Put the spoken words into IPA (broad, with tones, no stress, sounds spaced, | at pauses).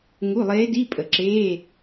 ŋ u˧˥˧ lˠ eː˧˥ d i˧˥˧ pʼ ə˨˩˦ ǁ eː˧˥˧